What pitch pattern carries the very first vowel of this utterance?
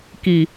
low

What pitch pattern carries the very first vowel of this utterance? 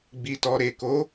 low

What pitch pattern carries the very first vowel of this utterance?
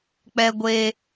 high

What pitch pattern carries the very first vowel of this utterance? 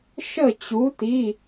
falling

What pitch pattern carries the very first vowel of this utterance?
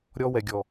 high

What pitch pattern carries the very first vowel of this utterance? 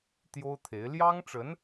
high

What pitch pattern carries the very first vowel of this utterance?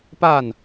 falling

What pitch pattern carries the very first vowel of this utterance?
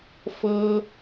high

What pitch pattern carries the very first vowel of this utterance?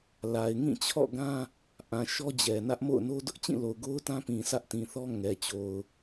low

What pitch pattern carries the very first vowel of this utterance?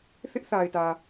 high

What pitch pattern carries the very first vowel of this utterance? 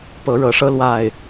rising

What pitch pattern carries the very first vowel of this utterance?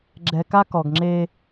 low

